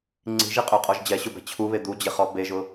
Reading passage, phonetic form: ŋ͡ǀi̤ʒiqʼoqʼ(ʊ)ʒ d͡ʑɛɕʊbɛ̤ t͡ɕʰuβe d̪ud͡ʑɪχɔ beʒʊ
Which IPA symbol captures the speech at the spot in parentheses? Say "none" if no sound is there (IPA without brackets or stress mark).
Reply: ɔ